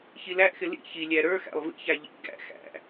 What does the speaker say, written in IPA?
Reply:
çilæʔxɪ lḭ çilʲæ ɾə˞xæ̰lˠ vḭçæ ʎḭ ɡæ̰ xæ̰

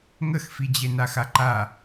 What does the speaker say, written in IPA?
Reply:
ŋəxfid͡ʑe naxaǃa

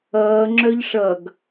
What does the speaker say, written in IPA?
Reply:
ʌː ŋ͡ǁœʎʂʌɡ

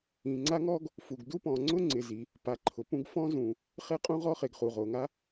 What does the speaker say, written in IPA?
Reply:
ĩ˩ŋ͡ǀa˥ŋɔ˥ɡ | fu˩ɡdu˥pɔ̃˩ ŋ͡ǀʊ˥ŋ͡ǀɪ˩ zi˩ | pa˩ǃʰʊ˩pũ˥ɡ fɔ̃˥zũ˩ | χe˥qʼũ˥ʁɔ˥ χe˩ɡχu˩ʁo˩ŋa˥

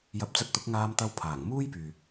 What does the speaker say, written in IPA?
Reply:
jɐ˨˥p̚t͡sɐ˧t̚t̪ʊ˨˥k̚ ŋaː˧mt̪ɐ˧wpʰaː˨˩ŋ muː˥jpyː˨

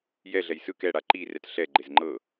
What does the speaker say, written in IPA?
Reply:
jɛɮɛj sɯ kɛɽa ǃi rɛtɬɛɡ͡ǃez ŋ͡ǃɤ

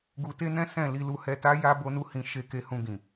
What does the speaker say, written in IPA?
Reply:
ɡu˧te˦nɛ̃˦ sɛ̃˦˨ li˧lu˧hɛ˧ta˦ ja˦ bo˦nu˦hĩ˧ ʃe˧ ke˧hũ˧ɡĩ˨

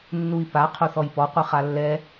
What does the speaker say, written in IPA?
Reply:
nːui̯pa qʰoθɔjpɔ qʷɯχalːɛ

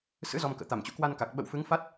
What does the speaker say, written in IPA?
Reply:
sɨ̰˧˥ zɔ˧mkə̰ː˧˨ t̪a˧˩mt͡ɕṵ˧˥kwa˧nka˨˩k̚ ɓə̰˧˨wfɨ˨˦ŋfa˦˥t̚

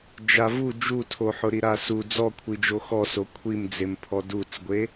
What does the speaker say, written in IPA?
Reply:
d͡ʒavu d͡ʒutʰoħʊ ɾiɾasu d͡zɔkʷʰid͡ʒo xɔso kʷʰimd͡zempʰɔ dut͡sɡʷe

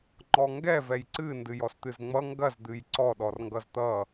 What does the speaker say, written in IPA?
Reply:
ŋ͡ǃɔŋɡɛ vɛjǀɨ ndɨjɔst̪ɨzŋ͡mʌ ŋɡɐz d̪ɨjǀɔ ɗɔrŋɡʌzt̪ʌ

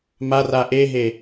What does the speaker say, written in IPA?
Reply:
mar aʔeɦe

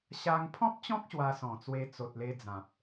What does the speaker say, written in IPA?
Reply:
ɕa˧ŋ pʰɔ̃˦p̚t͡ɕɔ̃˦k̚ ɕwa˧sɔ̃˨˩t͡swe˧ t͡so˨t̚le˧d͡zã˨p̚

